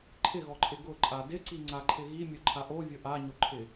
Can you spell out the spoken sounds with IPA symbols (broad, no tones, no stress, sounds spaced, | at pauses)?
ǃʰ ɪ ɣ ɔ ǃʼ ɪ ɡ ʊ ǃʼ a d ɪ ǀ i ŋ͡ǀ a ǃʰ ɪ ɣ i mʲ ʊ ǃʰ a ʔ o vʲ ʊ ʔ a ɲ o ǃʰ ɪ